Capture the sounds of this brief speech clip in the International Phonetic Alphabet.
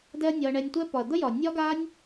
d ɛ˦ ɐ̯ nʲ ɒ˧ ɐ̯ ɳ ɛ˧ nʲ tʷ ɛ˦ p ɒ˨ ɐ̯ d̪ ə˦ j ɒ˨ nʲ ɒ˧ ɡ a˧ nʲ

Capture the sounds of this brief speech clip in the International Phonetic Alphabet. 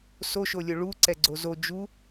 s o ʃ o lʲ o ɭ u ǀ ɛ ɡ͡ǀ o z o d͡ʒ u

